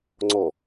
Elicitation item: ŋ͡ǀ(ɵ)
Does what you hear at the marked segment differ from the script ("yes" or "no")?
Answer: yes